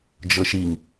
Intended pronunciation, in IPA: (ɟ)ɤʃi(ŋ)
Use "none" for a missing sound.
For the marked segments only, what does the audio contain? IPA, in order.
d͡ʒ, ŋ

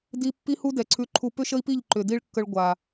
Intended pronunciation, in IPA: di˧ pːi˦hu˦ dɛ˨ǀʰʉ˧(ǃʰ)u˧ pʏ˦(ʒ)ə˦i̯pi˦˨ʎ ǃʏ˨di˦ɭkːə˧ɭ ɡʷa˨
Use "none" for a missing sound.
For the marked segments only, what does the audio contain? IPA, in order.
ǃʰ, ʃ

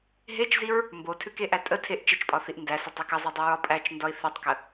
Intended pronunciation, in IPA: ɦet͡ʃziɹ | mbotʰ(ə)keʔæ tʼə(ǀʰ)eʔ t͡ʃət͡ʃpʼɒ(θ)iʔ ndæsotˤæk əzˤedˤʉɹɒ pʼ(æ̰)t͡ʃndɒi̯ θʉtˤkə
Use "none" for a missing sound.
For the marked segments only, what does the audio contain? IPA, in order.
ʉ, tʰ, θ, æ

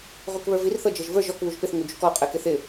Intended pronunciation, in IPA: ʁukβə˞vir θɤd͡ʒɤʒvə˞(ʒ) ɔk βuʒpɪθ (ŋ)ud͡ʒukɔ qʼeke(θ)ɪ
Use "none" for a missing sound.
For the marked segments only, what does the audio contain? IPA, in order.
ʒ, ŋ, θ

